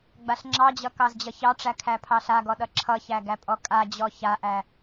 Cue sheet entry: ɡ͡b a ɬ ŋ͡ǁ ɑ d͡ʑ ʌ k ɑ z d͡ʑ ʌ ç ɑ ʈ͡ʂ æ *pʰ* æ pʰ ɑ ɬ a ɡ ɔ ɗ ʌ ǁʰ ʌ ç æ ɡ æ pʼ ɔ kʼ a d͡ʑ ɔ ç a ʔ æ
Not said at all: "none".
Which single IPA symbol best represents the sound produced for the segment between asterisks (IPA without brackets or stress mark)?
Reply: kʰ